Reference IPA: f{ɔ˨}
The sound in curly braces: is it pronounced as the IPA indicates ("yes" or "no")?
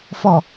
yes